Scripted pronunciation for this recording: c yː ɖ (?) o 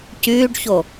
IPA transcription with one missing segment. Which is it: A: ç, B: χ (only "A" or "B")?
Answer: A